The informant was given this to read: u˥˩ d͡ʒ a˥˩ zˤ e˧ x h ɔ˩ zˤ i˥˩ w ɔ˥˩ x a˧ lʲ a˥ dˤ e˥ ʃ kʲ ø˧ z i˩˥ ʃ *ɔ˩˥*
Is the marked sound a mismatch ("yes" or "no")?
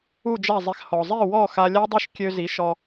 yes